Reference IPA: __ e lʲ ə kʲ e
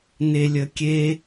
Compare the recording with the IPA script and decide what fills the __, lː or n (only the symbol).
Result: n